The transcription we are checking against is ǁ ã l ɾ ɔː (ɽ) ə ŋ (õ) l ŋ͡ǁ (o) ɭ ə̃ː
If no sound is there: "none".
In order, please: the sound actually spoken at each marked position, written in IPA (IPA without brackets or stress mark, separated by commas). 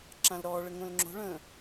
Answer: ɭ, õ, o̤